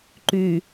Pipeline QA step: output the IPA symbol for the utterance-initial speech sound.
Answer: ǃ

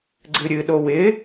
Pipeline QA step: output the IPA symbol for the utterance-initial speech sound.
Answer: ɡ͡ǀ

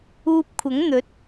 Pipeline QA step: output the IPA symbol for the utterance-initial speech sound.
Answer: uː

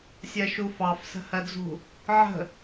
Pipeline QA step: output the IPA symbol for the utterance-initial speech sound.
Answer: sʲ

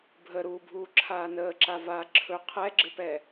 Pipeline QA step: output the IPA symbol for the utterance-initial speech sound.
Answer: bʱ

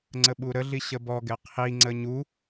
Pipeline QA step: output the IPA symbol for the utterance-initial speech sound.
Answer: ŋ͡ǀ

